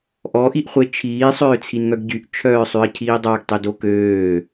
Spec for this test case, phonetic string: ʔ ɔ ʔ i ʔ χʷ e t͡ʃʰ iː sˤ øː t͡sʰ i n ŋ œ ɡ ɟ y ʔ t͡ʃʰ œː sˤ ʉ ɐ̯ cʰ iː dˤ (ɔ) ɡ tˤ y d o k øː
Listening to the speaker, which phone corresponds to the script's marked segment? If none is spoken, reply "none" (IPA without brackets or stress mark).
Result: ɑ